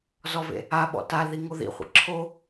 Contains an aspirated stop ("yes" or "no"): yes